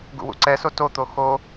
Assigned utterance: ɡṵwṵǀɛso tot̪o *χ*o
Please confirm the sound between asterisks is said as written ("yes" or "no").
no